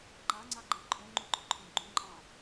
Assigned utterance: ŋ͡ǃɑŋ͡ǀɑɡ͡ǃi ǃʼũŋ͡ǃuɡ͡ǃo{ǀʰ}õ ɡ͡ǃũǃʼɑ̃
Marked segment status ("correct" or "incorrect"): incorrect